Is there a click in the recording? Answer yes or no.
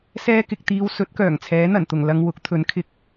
no